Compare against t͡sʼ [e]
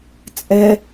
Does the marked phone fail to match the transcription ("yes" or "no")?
yes